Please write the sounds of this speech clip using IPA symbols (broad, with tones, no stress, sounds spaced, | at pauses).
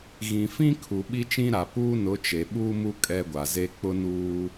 ɣ ĩ˨ f ĩ˦ kʰ u˨ ɓ i˦ t͡ʃ ĩ˦ ɾ a˨ p uː˦ n ʊ˨˦ t͡ʃ e˨ ɓ uː˦ m u˦ kʼ ɛ˦ ɡʷ a˨ z e˦ k͡p ʊ˦ n uː˦